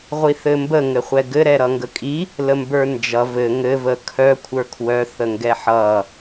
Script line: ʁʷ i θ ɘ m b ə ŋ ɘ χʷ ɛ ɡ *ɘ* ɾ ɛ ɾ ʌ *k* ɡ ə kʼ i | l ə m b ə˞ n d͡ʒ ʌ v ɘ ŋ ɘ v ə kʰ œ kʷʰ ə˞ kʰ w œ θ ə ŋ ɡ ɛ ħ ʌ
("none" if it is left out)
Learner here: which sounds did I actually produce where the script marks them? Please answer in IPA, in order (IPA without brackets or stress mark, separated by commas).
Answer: ɘ, ŋ